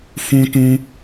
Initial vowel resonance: nasal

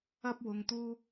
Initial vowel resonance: oral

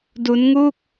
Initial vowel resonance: oral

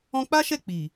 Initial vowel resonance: nasal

